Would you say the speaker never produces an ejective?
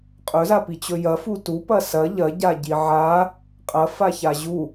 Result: no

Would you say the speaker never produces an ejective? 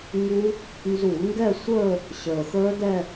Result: yes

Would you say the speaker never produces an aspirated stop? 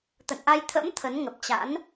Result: no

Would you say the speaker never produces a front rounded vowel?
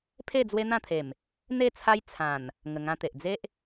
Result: yes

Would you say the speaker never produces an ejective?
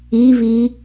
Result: yes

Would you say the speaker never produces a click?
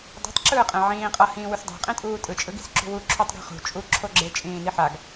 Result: no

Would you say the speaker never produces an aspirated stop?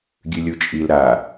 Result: yes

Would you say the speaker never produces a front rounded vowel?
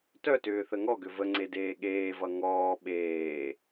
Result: no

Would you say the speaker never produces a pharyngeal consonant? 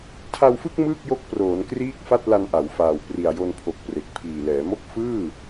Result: yes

